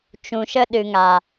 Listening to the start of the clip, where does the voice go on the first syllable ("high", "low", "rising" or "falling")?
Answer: low